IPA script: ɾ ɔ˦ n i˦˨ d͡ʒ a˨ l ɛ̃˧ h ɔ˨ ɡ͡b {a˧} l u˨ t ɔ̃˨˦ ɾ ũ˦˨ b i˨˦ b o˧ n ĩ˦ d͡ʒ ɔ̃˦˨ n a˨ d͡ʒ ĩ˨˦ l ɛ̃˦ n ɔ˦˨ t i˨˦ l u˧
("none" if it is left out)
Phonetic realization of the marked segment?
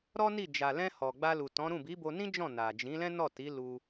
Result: a˧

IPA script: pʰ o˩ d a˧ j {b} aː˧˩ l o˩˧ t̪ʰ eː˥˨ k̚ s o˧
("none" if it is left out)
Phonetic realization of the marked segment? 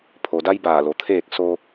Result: b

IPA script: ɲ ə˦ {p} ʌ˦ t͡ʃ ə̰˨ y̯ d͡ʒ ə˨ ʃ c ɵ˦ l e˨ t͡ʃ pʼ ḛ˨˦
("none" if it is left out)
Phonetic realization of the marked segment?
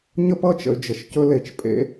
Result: p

